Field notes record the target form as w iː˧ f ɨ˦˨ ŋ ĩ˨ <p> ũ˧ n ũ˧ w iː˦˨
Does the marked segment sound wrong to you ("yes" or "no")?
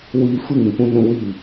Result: no